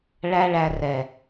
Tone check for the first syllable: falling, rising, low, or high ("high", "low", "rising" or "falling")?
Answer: high